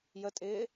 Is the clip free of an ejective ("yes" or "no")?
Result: no